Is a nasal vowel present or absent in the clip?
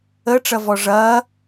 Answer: absent